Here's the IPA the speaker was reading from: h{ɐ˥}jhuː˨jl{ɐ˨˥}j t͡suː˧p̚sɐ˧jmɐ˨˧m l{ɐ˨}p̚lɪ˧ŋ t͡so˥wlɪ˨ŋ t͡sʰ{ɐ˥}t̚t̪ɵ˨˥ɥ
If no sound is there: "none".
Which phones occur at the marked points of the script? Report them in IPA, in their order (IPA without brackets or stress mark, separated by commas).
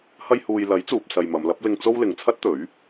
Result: ɐ˧, ɐ˨˥, ɐ˨˥, ɐ˥